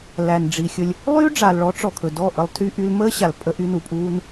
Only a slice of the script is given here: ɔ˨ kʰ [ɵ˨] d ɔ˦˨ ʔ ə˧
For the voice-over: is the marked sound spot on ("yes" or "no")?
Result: yes